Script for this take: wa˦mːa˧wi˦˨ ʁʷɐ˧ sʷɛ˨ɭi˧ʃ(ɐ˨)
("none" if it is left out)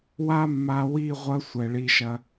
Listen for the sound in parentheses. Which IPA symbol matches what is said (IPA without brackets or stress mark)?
ɐ˧